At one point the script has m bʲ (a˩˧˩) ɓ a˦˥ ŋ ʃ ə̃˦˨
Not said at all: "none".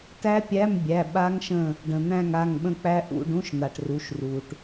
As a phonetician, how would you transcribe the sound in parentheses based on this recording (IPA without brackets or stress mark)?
æ˩˧˩